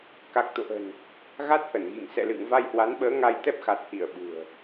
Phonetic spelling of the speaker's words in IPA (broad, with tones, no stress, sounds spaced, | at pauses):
k a˨˩ k̚ t̪ o̰˧˨ ʔ ə̤˨˩ n | ɣ a˦˥ t̚ h ə˧˩ n ɣ ḭ˧˨ ŋ s ɛ̰˧˨ l ɨ̰˧˨ ŋ v a˧ j h w a˨˦ n ɓ əː˨˦ ŋ a˧ j t̪ ɛ˦˥ p̚ x a˨˩ t̚ h i˧˩ ə̯ ɓ ṳ˨˩ ə̯